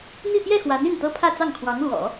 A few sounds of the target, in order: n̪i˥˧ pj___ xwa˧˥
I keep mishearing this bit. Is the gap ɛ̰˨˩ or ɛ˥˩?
ɛ˥˩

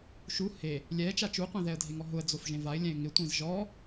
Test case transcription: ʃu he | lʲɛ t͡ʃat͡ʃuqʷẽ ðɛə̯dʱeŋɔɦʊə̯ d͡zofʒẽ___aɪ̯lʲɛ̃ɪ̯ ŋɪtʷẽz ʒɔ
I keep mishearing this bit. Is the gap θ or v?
v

